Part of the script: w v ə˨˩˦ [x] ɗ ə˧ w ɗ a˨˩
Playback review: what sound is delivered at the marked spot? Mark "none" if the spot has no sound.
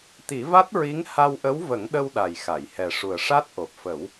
ŋ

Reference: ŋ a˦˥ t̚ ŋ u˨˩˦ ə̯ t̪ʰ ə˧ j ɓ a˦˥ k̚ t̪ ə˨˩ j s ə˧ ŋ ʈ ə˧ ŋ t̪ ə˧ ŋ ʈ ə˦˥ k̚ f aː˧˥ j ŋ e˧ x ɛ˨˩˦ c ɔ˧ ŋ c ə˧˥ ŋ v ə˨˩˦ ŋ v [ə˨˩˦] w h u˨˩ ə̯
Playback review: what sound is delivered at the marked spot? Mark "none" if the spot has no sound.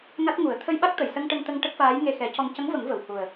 ə˨˩˨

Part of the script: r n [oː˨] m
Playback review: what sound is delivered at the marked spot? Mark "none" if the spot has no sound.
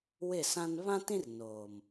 oː˨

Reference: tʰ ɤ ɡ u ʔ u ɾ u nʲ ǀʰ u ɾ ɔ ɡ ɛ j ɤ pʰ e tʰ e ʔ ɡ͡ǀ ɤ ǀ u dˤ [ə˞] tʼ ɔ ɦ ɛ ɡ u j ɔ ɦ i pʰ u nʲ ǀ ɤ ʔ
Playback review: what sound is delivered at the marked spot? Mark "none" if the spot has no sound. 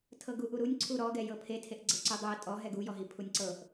ɤ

